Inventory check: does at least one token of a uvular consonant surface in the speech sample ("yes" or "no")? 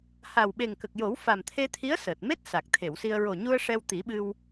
no